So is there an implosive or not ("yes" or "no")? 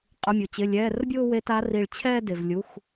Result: no